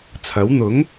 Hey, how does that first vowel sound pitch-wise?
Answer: rising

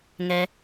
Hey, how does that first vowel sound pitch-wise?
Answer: low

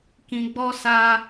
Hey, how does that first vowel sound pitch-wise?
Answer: low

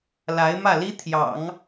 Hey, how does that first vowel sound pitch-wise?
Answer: rising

